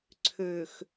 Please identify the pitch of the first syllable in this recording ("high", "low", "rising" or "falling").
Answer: low